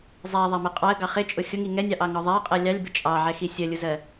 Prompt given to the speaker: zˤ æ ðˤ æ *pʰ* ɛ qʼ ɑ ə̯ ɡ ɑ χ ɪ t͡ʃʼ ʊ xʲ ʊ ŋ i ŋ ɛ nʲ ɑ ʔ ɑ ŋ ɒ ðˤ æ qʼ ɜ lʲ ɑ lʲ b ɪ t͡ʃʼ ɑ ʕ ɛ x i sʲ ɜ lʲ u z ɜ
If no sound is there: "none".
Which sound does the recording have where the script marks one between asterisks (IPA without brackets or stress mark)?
m